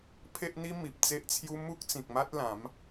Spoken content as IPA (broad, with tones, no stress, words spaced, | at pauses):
pʰe˦ʔn̪i˦ mi˨p̚t͡se˦ʔt͡sʰju˦ mu˦k̚t͡sĩ˨k̚ma˦t̚ lã˨˦m